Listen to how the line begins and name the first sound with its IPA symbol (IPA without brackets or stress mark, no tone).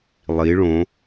lˠ